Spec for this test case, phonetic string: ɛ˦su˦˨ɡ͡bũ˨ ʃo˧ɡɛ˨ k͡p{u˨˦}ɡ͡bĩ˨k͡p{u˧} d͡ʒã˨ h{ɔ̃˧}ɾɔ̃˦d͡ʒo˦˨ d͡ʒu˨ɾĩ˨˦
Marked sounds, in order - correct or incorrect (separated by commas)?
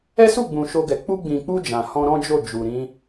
incorrect, correct, correct